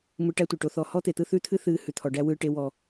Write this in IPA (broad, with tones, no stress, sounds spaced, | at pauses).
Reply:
m ɯ˨ ʈ æ˦ tʷ e˨ ʈ o˦ θ ɔ˦ h ɔ˦ t̪ e˨ t̪ ɯ˦ θ ʉ˦ t̪ʰ ɨ˦ θ ɨː˨ h ʉ˨ t̪ʰ ɔ˨ ɖ æ˦ w ɯː˦ ʈ e˦ w ɔ˦